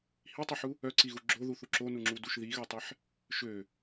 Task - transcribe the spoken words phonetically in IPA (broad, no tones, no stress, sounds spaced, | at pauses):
h i tˤ u ħ u | œ ǀ i ɣ u ɡ͡ǁ o ð u θ u ǁ o n u ŋ͡ǁ u d u ʃ ð i ɣ ø tˤ ɛ ħ | ʃ ø